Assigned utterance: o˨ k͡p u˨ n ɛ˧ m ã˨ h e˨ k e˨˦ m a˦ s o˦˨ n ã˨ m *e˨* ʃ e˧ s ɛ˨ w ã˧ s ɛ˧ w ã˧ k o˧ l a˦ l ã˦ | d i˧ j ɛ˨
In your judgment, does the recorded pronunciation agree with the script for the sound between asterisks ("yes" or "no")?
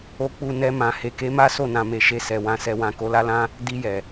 yes